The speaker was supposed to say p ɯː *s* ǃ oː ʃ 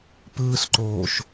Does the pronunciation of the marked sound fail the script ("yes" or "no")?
no